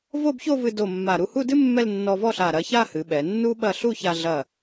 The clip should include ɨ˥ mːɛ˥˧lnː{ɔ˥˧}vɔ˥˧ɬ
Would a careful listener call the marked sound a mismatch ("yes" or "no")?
yes